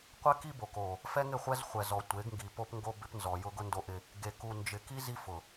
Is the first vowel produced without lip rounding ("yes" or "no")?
yes